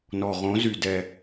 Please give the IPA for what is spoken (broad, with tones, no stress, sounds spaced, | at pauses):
n ɔ˨ ʁ õ˨˦ z y˨ d ɛ˨